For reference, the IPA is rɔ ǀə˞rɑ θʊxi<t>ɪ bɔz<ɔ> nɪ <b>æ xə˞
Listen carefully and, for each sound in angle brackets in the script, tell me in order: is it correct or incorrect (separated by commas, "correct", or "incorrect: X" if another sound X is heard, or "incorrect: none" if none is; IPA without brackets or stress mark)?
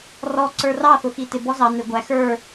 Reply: correct, incorrect: ɑ, incorrect: ɡʷ